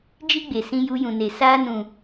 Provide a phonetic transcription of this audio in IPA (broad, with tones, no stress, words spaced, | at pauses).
d͡ʒi˦ɡ͡be˨ sĩ˧ju˧jũ˨ne˨ saː˧nũ˨